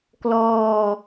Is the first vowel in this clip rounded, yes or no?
yes